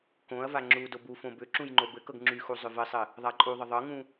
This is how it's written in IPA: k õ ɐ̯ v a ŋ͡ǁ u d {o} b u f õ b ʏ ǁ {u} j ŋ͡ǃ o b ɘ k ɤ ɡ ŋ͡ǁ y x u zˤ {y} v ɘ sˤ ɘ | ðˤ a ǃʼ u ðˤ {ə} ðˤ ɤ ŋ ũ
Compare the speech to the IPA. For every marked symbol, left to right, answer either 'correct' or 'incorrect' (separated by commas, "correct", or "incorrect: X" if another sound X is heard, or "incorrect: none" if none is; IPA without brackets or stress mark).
correct, incorrect: ũ, incorrect: ʏ, correct